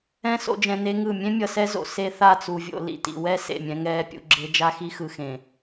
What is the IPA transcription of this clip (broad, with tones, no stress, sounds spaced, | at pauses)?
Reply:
ɛ̃˦ s o̰˨ d͡ʒ ɛ̃˨ n e˦ ŋ ɯ˦˨ mʲ ẽ˦ mʲ ʌ˨ s ɛ˦ z o̰˨ s e˦ θ a˦˨ t͡s u˨ vʲ o̰˨ l ḭ˨ t ḭ˨ w ɛ˦ s ḛ˦˨ mʲ ɛ̃˦ ŋ ɛː˦ pʲ ṵ˦ ɡ͡ǁ e˦ d͡ʒ a˦ x i˦ x ɯ˨ x ẽ˨